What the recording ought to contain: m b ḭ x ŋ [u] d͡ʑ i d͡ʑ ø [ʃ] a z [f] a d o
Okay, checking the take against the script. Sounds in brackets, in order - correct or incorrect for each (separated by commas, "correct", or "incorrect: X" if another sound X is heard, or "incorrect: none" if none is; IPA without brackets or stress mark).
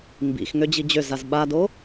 incorrect: ø, incorrect: z, incorrect: ɓ